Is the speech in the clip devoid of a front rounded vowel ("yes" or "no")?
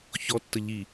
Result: yes